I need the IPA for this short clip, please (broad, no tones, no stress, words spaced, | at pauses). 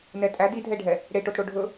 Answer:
nɛtʼæd idʱɛɖʱɛ | ɽeʈotɽo ɖʱɵ